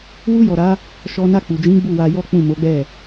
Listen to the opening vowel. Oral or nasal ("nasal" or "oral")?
oral